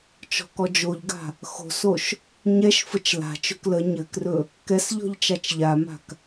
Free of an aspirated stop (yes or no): yes